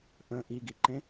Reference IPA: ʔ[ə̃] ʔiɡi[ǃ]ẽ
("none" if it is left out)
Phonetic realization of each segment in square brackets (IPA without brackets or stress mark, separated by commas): ə̃, ǃ